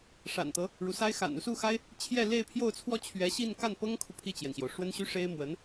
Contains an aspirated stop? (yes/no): yes